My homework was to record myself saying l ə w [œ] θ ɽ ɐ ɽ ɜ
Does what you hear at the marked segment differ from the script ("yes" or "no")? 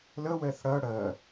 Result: yes